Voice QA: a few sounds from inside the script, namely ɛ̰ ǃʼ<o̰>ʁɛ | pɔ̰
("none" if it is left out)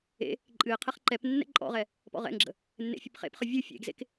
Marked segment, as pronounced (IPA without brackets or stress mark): ɔ̰